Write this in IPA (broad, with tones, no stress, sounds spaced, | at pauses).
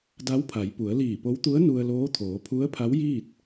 d a˧˥ w pʰ a˩˧ j p u˩˧ ə̯ l iː˧˩ p o˧˥ w t̪ u˧˥ ə̯ n u˧ ə̯ l oː˧˥ t̪ʰ oː˩˧ pʰ u˧˥ ə̯ pʰ a˧˥ w j iː˥˨ t̚